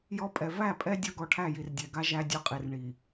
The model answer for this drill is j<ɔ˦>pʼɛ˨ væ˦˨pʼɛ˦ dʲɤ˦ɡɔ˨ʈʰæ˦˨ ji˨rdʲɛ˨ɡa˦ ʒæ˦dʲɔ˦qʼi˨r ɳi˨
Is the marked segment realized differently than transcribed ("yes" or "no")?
no